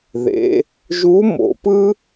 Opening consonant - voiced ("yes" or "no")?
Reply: yes